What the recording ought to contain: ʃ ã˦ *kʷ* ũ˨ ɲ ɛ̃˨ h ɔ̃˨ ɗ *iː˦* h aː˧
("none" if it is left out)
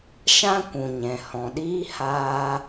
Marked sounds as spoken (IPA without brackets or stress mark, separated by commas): kʷ, iː˦